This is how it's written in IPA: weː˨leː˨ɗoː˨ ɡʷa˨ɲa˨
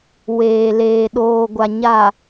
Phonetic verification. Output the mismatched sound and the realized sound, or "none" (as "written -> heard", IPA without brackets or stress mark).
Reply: none